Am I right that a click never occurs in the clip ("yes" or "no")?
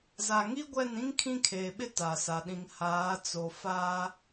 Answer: yes